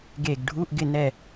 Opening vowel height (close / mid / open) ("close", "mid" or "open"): mid